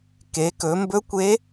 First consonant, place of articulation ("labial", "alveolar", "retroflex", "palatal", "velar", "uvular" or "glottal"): velar